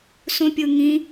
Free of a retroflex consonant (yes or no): yes